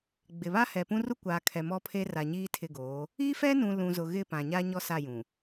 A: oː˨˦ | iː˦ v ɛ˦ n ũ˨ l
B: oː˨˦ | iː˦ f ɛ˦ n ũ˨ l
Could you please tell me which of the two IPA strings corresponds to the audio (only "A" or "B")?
B